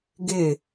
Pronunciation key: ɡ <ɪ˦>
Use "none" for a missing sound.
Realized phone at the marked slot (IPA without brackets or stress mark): ɪ˦˨